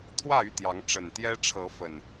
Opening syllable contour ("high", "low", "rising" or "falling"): falling